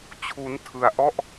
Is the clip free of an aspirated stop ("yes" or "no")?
no